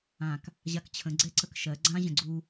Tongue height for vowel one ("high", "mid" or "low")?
low